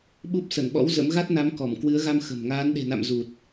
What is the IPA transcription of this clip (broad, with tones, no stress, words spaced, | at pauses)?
ɓu˦˥p̚ sə˧˩nɓɔ̰˧˥w zə̰˧˥m ɣa˦˥t̚na˨˦m kɔ˧˩m kwɨ˨˦ə̯ɣa˧m xə̤˨˩m ŋaː˨˦n ɗe̤˨˩na̰˧˨m zu˨˩t̚